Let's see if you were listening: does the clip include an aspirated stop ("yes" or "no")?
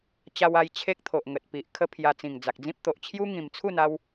yes